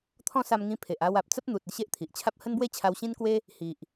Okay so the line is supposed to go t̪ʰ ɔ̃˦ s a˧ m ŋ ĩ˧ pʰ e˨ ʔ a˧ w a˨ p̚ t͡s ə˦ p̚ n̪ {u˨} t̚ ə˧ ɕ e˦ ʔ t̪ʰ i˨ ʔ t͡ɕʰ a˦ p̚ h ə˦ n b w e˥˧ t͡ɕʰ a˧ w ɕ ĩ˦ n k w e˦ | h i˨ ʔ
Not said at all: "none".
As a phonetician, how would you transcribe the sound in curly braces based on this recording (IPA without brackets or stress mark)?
u˨